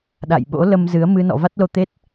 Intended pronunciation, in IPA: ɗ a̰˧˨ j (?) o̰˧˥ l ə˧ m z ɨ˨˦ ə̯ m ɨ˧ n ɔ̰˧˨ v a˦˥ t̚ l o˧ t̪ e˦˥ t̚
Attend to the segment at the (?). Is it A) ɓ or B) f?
A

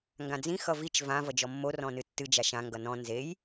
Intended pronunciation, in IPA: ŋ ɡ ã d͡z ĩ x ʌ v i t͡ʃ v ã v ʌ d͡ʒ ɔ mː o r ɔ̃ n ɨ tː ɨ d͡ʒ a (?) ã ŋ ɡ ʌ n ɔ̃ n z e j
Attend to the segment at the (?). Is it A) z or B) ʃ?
B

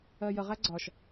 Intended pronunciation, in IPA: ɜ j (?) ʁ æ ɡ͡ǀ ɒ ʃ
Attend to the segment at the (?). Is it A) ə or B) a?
A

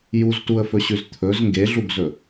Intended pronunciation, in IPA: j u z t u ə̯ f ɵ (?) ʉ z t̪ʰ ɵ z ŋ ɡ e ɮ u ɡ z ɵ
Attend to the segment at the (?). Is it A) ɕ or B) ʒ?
A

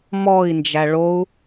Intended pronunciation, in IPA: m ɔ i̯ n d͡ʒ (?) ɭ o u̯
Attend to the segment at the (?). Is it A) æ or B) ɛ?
A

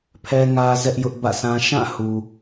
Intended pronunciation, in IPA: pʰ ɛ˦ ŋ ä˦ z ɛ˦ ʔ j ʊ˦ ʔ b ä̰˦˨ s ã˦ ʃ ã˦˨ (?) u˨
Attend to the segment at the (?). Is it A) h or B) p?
A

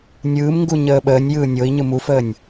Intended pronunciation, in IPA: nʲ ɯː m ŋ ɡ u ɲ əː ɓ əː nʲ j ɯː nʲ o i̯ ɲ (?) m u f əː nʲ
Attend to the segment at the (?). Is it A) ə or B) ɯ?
B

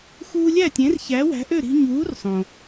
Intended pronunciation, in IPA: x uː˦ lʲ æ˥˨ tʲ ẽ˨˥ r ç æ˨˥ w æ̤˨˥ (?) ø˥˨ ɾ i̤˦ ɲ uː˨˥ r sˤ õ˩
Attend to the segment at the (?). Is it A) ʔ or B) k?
A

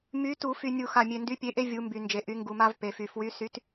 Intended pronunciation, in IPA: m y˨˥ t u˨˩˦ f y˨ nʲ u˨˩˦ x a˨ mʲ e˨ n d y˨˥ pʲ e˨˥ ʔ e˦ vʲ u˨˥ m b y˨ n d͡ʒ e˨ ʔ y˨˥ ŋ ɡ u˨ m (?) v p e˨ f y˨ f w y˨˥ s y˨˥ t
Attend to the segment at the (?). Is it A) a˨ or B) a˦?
B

